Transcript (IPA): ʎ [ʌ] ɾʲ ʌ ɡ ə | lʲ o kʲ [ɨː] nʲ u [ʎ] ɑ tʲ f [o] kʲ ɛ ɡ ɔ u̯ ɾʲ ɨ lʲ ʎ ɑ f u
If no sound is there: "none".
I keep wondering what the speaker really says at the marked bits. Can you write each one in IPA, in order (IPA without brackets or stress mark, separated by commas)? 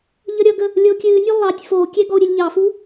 ʌ, ɨː, lˠ, o